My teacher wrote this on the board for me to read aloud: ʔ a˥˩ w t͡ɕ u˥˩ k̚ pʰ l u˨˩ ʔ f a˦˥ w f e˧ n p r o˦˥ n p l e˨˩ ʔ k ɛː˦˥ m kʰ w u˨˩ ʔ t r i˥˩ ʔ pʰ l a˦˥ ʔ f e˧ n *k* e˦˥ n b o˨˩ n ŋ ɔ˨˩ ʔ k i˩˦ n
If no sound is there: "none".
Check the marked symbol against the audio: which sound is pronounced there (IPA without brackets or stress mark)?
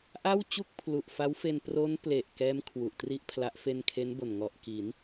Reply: kʰ